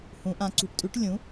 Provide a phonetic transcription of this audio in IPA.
h ũ˩˧ ʔ ã˩˧ ǀ ṳ˩˥ ʈ tʼ ʉ˩˥ ʈ lʲ ũ˩˥

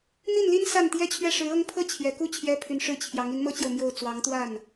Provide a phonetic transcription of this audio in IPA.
n̪ i˥˩ n l i˥ n s a˥˩ n t̪ j ɛ˥ t͡ɕʰ ɥ ɛ˥˩ ʂ ɻ̩˧˥ ɤ˥ ŋ pʰ ɤ˥ t͡ɕʰ j ɛ˨˩ k u˥˩ t͡ɕʰ j ɛ˥ pʰ y˧˥ n ʂ ɻ̩˥˩ t͡ɕʰ j ɑ˧˥ ŋ i˧˥ n m ɤ˥ t͡ɕ j o˨ ʊ̯ m j o˥˩ ʊ̯ t͡s w ɑ˧˥ ŋ t̪ w a˥˩ n

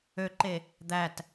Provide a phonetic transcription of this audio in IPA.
ø ǃ e | d̪ æ t

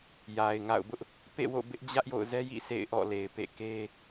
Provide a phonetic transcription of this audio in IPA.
j a˨ ɪ̯ ŋ a̰˦˨ ʊ̯ b ʊ˦ ʔ | p ḛ˦˨ w o̰˦˨ b ɪ˦ ʔ d͡ʑ ä˦ ʔ j o̰˦˨ ʊ̯ z ɛ˦ j ḭ˦˨ sʰ ḛ˦˨ ɪ̯ ʔ ɔ̰˦˨ l e˨ ɪ̯ p ḛ˦˨ k e˦

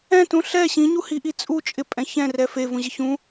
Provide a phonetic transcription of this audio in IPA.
ɛ̃ t ũ ɬ ɛ ɕ ĩ ɲ u h i ʔ i t͡sʼ u t͡ʃʼ ɪ pʼ ɛ̃ ç ɛ̃ r ɛ f e v ũ ʑ ɪ ç ũ

